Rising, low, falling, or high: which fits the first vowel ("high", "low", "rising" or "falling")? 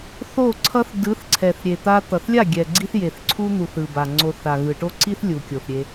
falling